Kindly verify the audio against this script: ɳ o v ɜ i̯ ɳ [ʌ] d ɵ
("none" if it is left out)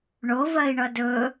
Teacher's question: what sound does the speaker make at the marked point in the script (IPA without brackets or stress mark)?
ʌ